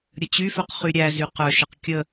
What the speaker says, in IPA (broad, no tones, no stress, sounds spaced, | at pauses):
ɾʲ ə t͡ɕ y f œ q χ y ɾʲ æ z y q œ ʃ ə q kʲ ə